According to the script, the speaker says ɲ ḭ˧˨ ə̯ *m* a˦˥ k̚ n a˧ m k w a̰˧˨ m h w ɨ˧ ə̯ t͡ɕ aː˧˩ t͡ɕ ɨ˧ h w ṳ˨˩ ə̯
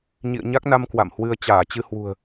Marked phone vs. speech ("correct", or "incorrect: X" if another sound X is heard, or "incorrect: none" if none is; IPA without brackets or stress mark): incorrect: ɲ